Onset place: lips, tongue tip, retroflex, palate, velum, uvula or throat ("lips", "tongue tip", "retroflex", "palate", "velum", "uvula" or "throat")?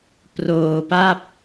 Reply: lips